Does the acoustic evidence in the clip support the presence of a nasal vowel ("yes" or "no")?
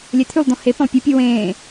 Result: yes